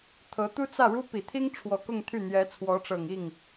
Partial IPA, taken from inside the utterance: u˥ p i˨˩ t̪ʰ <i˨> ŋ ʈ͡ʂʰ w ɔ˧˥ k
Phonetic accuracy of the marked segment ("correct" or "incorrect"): incorrect